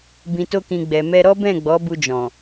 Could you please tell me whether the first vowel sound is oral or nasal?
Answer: nasal